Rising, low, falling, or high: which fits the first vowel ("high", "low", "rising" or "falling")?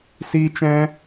high